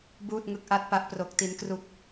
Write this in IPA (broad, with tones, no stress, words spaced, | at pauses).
buː˥˩t̚ŋɯ˥˩k̚ ʔa˥˩t̚pa˥˩ʔ pro˦˥k̚ ti˦˥n kru˥˩k̚